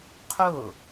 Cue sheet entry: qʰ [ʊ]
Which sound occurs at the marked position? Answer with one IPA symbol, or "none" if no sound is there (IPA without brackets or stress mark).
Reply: ʊ